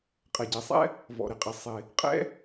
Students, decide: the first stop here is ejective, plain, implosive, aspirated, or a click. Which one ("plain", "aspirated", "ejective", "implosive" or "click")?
ejective